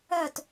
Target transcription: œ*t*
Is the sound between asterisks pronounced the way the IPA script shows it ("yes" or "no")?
yes